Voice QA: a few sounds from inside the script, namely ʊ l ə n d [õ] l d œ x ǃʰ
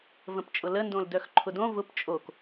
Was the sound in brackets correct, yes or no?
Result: yes